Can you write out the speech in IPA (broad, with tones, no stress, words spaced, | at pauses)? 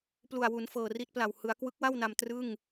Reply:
plu˨˩a̯wu˩˦n fɤː˨˩ri˦˥t̚pla˨˩w hɯ˩˦a̯ kwɯ˦˥k̚wa˥˩wna˧m trɯ˥˩ŋ